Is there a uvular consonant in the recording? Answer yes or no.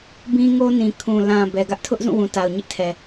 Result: no